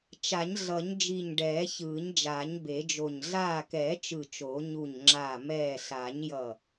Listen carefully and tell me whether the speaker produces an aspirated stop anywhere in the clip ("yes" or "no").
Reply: no